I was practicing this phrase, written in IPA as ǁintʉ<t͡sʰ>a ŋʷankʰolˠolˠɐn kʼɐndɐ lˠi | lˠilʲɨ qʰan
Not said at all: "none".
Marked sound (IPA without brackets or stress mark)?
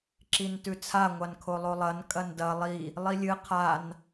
t͡sʰ